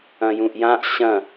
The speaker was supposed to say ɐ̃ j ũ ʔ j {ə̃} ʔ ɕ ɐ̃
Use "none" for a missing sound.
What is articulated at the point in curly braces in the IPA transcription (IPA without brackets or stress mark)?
ã